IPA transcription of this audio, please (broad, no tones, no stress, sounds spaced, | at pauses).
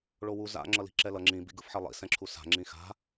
ɭ o w u z a̰ ŋ͡ǁ ʌ l i̤ ǁ ɛ l ʌ ŋ͡ǁ ĩ b ḭ ɡ ɯ f ħ ɛ lˠ ḭ s ɛ̃ ǁʰ u s a̤ ŋ͡ǁ ĩ x a̤